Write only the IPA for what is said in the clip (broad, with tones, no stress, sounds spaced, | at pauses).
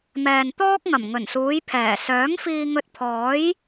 m ɛː˨ n t̪ ɔː˥ k̚ ŋ ɐ˨˩ m ŋ ɵ˨˩ n s uː˨˧ j pʰ ɛː˨˩ s œː˨˥ ŋ f iː˧ ŋ ɵ˧ t̚ pʰ ɔː˨˥ j